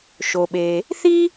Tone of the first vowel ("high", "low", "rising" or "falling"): low